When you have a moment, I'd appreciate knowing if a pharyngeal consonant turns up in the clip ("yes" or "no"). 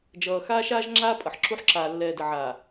yes